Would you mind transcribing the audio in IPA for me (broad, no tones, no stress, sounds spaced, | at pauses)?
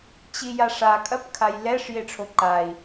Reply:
t͡ɕ i j a ʂ a kʼ ɐ p kʰ a j l ɛ ʂ j e ʈ͡ʂʰ o ǃ a i̯